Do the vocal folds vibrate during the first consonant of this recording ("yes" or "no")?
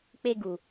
no